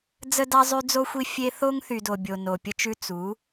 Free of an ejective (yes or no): yes